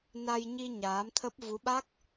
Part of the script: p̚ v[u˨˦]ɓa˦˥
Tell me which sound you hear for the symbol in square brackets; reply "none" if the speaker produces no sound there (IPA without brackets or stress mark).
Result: u˨˦